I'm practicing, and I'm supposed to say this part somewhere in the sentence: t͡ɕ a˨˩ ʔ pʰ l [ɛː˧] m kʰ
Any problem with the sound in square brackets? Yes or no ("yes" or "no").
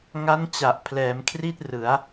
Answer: yes